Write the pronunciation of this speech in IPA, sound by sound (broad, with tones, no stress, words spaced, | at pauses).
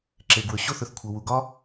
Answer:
ǁe˩ɡwɵ˩ ɕo˥θɵ˩θ kʷʰɐ˩wu˩ɡɒ˥